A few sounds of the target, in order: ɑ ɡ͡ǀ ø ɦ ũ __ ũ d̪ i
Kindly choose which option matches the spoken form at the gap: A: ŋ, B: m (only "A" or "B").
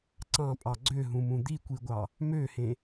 B